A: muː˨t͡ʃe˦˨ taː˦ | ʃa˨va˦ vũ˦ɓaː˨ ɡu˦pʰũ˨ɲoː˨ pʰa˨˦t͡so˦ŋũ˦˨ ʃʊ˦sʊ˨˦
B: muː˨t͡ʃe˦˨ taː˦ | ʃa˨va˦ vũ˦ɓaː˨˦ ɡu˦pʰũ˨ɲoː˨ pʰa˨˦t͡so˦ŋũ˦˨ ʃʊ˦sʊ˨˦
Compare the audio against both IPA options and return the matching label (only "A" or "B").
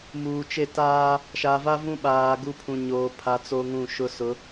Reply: A